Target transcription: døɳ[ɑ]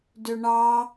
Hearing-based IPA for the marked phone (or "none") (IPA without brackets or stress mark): ɑ